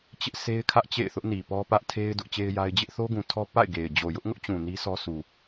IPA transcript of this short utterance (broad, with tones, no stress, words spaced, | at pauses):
t͡ɕɪ˦ʔsʰe˦ɪ̯ kʰä˦ʔ t͡ɕḛ˦˨ɪ̯θʊ˦ʔ ni˨pɔ˦pä˦ʔ tʰe˦ɪ̯ dʊ˦ʔt͡ɕe˦ɪ̯ja˦ɪ̯ d͡ʑɪ˦ʔ θo˦ɡũ˨tʰɔ˦ pa̰˦˨ɪ̯ ɡe˨ɪ̯ d͡ʑo˨jʊ˦ʔŋʊ˦ʔt͡ɕũ˨ ni˦sɔ˦ su˨